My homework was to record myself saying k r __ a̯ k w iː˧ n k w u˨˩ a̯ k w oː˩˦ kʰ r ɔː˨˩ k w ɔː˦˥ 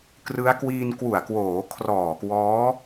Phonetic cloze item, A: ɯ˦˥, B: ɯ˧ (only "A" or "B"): A